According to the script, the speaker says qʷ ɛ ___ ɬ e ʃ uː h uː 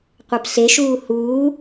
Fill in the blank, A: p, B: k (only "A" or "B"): A